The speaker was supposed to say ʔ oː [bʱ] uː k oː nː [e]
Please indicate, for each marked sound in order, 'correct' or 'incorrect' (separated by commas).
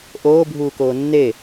correct, correct